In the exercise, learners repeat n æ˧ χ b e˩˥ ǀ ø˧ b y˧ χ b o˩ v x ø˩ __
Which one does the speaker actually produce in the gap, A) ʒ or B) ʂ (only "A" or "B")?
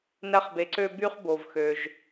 A